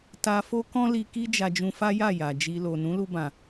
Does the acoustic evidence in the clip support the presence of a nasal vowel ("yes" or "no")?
yes